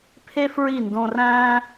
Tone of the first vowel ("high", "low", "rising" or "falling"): high